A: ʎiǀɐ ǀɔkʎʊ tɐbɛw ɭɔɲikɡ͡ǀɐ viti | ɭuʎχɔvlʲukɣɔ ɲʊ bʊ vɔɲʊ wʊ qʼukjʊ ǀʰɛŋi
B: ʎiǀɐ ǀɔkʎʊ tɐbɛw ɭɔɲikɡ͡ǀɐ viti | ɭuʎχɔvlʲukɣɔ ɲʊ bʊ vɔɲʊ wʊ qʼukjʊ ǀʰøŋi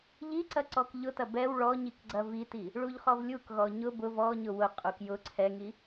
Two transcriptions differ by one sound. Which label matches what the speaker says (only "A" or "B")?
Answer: A